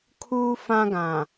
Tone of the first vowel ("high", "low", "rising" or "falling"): high